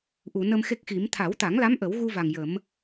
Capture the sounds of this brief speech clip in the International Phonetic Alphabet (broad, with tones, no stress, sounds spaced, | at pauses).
ʔ u˨˩˨ n ə˧ m x e˦˥ k̚ x i˨˩˦ m t̪ʰ a˨˩˦ w t̪ a˨˩˦ ŋ l a˧˥ m ʔ ə˨˩˦ w ɣ u˧ v a˨˩ ŋ j ə˨˩˦ m